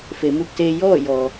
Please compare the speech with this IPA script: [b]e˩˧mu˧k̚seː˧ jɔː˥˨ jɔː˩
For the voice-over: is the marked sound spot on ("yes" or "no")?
no